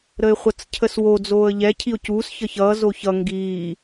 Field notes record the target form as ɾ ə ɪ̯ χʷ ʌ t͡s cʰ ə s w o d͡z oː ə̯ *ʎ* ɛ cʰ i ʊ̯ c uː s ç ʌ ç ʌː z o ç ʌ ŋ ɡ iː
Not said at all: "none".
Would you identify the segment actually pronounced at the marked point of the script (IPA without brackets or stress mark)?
ʎ